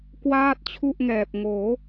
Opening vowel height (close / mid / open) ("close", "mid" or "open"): open